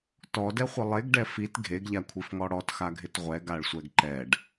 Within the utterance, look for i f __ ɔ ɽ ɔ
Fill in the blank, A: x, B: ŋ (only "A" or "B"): B